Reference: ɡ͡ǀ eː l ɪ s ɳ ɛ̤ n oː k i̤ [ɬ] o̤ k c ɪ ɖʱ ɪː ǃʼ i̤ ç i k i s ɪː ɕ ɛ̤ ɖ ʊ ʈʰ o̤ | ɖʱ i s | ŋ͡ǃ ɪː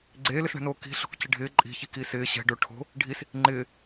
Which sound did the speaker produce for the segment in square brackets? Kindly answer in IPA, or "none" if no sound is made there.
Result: ɬ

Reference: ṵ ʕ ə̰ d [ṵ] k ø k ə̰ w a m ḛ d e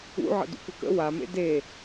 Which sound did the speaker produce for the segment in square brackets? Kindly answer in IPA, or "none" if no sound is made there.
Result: ṵ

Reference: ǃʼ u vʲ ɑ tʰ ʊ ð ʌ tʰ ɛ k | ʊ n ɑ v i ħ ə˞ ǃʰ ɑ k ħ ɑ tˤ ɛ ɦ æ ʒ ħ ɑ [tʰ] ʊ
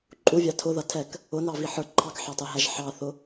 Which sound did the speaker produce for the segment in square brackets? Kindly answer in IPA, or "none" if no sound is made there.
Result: θ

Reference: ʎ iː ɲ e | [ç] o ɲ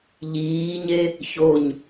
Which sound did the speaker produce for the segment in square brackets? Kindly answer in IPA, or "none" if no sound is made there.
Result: ç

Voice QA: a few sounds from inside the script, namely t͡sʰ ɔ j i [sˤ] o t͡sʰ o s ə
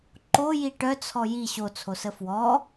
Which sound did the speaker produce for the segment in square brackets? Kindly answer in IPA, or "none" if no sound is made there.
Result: ɕ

